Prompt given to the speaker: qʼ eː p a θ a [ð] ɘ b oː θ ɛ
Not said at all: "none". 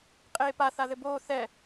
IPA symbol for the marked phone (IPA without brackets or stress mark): ð